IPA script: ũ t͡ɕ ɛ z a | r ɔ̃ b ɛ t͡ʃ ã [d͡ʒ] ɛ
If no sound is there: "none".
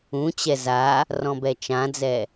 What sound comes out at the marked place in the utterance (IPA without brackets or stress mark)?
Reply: d͡z